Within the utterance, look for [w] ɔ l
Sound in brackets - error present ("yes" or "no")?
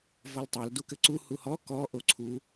yes